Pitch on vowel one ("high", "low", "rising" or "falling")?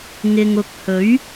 low